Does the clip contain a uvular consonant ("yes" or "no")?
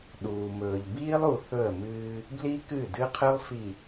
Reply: yes